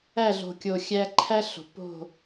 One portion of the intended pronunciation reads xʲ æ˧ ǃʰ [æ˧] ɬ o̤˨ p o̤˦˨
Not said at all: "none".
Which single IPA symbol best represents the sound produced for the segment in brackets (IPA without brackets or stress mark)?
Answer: æ˦